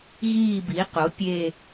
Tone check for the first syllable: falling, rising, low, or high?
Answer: falling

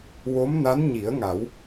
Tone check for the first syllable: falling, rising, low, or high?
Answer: rising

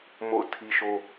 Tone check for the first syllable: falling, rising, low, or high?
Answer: falling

